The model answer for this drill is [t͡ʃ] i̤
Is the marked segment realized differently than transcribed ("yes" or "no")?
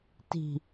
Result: yes